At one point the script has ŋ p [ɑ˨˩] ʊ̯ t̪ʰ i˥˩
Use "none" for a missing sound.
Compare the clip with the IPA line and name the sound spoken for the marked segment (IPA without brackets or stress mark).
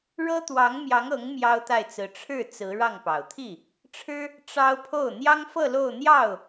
ɑ˨˩